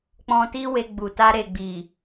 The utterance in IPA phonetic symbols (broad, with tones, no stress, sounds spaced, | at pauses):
k͡p ɔ̃˧ t i˦ w e˧ ɡ͡b u˨ t a˧ ɾ e˨ ɡ͡b i˨